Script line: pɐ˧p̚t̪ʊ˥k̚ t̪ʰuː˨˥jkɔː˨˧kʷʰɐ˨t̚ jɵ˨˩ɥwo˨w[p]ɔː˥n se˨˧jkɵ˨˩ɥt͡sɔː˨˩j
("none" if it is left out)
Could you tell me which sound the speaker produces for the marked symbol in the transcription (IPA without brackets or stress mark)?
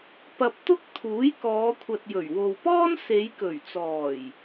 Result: p